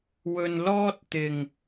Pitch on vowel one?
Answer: low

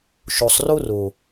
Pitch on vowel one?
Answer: low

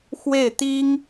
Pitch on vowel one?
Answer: falling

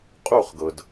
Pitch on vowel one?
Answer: falling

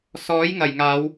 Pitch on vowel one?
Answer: rising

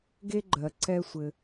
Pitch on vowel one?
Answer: high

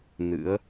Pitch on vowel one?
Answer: rising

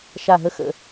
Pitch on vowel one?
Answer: falling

